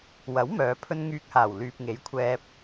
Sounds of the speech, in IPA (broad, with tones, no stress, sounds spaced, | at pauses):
w ɐ˨˥ w m œː˨˧ pʰ ɵ˥ n ŋ yː˧ k̚ h aː˨˩ w l yː˨ p̚ ŋ e˨˥ j kʷʰ ɛː˧ p̚